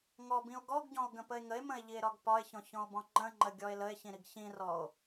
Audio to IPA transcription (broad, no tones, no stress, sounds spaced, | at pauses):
ŋ ɔ b ĩ o̯ ɡ ɔ ɡ ɟ ɔ̃ o̯ ɡ ə̃ p ə e̯ ŋ ə e̯ m ə̃ e̯ ʎ i e̯ ɾ ɒ ɡ p ɒ e̯ ç ɔ̃ ç ɔ̃ o̯ b ɔ̃ ŋ͡ǃ ə̃ ŋ͡ǃ ə ɡʲ ɔ e̯ l ə e̯ ç ĩ ɾ i ɡ ç ĩ r ɔ o̯